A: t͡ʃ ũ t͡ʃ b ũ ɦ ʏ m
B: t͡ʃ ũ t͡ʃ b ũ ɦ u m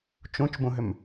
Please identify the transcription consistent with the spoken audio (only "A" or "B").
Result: A